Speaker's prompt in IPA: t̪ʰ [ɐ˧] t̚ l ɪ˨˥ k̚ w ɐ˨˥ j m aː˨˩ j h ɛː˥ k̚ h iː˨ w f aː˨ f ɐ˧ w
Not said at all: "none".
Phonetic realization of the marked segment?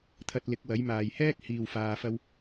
ɐ˧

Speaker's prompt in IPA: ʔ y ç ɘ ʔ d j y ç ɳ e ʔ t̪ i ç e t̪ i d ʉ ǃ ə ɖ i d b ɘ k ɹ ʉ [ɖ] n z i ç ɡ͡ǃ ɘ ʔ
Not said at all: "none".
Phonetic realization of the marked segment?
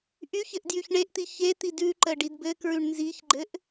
ɳ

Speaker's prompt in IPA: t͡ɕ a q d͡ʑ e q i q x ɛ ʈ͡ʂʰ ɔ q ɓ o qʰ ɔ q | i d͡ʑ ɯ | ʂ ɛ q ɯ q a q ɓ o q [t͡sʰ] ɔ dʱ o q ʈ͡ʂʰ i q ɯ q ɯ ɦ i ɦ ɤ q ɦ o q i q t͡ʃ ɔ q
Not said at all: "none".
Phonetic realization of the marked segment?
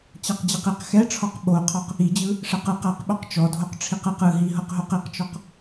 t͡ʃ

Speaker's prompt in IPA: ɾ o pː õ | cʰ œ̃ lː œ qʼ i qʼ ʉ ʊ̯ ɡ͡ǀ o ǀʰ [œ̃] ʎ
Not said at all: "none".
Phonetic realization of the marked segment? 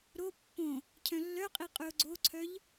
œ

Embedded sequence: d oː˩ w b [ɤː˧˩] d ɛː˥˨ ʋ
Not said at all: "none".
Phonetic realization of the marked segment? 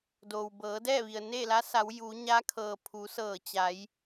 ɤː˩˧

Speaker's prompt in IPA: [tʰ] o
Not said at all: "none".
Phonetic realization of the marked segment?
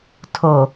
tʰ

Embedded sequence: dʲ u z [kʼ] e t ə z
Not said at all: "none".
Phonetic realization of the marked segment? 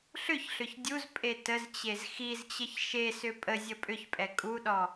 pʼ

